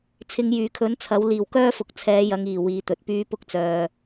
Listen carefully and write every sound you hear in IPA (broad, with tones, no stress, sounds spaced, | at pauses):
t͡sʰ ɪ˨˧ ŋ j yː˨˩ kʰ ɵ˨˥ n t͡sʰ ɐ˨˥ w l iː˨˩ w k œː˥ f ʊ˨ k̚ t͡sʰ ɛː˨˧ j ɐ˨˧ ŋ iː˨˩ w iː˨˧ t̪ ɵ˨ t̚ p yː˥ p ʊ˥ k̚ t͡s œː˨